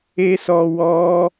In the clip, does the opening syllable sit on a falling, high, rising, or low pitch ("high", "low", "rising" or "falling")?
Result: high